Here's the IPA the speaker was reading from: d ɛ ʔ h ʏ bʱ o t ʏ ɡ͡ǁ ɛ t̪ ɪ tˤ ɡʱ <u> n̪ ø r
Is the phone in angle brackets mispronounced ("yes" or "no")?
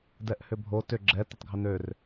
yes